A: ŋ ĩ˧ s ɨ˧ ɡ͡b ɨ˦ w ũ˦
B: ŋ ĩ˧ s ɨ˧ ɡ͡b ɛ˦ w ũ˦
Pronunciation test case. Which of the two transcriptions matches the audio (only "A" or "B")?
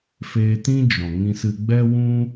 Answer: B